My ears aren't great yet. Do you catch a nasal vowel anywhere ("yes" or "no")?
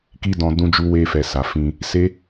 yes